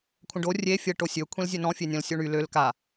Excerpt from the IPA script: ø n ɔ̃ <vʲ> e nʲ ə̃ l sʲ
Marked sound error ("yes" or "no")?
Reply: yes